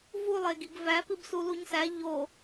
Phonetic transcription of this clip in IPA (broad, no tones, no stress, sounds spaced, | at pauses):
v u lˠ e ɡ i ɡ v æ p i b s u l u ɲ s æ ʎ o